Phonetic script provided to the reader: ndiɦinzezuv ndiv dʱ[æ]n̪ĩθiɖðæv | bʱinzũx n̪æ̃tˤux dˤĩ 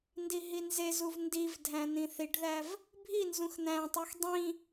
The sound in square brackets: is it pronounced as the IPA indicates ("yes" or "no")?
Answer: no